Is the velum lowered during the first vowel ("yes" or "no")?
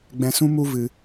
yes